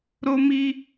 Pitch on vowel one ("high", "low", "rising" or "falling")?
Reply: high